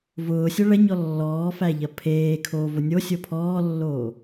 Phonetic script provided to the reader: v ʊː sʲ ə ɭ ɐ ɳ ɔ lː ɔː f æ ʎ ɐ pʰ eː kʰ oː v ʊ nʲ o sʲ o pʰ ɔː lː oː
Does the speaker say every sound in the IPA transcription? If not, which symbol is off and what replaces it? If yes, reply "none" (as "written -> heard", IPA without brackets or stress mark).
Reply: ɳ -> ɲ